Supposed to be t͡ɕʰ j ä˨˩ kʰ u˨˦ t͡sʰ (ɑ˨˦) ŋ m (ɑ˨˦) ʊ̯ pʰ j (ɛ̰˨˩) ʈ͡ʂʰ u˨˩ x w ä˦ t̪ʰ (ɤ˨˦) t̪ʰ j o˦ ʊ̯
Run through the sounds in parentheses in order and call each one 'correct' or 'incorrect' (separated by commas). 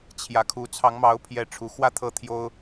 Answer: correct, correct, incorrect, incorrect